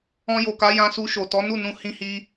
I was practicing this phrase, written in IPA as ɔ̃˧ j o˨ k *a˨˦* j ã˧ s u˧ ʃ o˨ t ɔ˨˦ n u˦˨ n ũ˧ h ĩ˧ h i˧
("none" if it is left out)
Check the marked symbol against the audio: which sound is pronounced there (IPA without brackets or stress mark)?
a˨˦